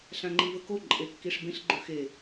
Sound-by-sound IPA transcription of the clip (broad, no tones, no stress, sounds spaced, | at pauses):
ɬ ã ŋ͡ǃ i v ɵ k o ǃʼ e kː i ʂ b ẽ ɬ ɡ͡ǃ ɵ x e